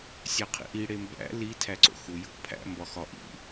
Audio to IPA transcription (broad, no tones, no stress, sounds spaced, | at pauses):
sʲ æ qʰ ḭ ʔ i ɽ e m b æ̰ l i tʰ æ ǀ o̰ x u j o̰ pʰ æ̰ m b ɒ x ɒ ʔ ḭ